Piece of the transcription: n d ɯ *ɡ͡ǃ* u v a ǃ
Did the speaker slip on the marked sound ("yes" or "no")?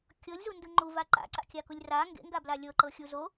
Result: yes